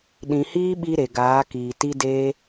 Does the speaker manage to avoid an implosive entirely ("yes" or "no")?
no